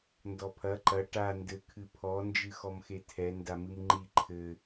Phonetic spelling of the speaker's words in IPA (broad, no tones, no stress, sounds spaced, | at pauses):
n d ɔ pʰ ɐ ǃ ɐ ʈ a n d ɘ kʰ ɨ pʰ ɔ n d͡ʒ ɨ x ɔ m x e tʰ ɛ n d a m ɨ m ŋ͡ǃ i ǃʰ ɘ